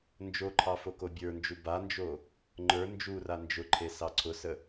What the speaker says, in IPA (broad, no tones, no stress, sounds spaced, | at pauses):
n d͡ʒ o ǃʰ ɑ f o k o bʲ ə˞ n d͡ʒ u b a n d͡ʒ o | ŋ͡ǃ ə˞ n d͡ʒ u r a n d͡ʒ ʊ ǃʰ e s ɑ ǀʰ ʊ s ə